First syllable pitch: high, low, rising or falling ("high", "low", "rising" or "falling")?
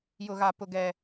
high